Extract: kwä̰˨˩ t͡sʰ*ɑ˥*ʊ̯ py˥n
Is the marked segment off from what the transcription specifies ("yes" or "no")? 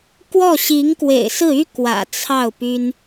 yes